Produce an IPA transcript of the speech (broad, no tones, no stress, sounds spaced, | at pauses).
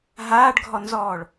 ɦ aː ɖ ɡʱ ɔ n z ɔː ɭ